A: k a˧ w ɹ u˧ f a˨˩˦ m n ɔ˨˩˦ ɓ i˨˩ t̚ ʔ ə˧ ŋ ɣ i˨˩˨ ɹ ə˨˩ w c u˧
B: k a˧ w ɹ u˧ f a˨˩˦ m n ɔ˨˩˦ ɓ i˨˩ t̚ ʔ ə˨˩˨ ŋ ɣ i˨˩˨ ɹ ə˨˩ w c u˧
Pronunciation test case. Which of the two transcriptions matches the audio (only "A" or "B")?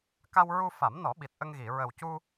A